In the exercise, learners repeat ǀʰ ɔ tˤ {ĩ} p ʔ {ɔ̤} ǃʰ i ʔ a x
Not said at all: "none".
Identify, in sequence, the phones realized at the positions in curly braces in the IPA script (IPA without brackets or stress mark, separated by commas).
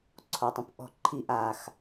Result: ĩ, ɔ̤